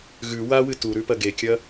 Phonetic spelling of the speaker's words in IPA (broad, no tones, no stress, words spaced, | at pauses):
ɣʉ wawɨ tuɾʉpɐ ɡekʲɐ